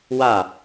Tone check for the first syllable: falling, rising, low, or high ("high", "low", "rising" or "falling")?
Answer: falling